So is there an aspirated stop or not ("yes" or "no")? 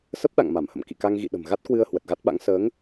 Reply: no